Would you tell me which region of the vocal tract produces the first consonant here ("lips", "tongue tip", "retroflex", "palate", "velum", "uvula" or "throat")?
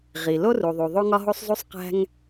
uvula